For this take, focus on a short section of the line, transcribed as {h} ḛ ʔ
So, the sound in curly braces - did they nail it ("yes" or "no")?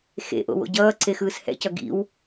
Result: no